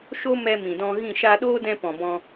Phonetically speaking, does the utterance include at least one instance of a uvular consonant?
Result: no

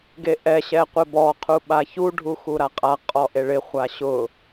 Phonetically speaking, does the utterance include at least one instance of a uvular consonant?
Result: yes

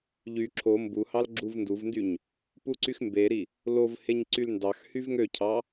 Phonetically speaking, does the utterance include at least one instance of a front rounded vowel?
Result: yes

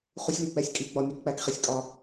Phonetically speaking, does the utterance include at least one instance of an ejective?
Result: yes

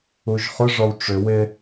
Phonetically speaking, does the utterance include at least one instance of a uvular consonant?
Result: yes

